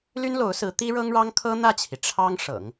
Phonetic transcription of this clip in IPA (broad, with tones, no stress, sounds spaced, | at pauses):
l y˥ n l o˧˥ ʊ̯ s ɹ̩˧˥ t̪ i˥ ɻ ɤ˥ ŋ ɻ ɑ˥ ŋ kʰ ɤ˥ n̪ ä˥˩ t͡ɕʰ i˩ ʈ͡ʂʰ ɑ˥ ŋ ʂ ɤ̰˨˩˦ ŋ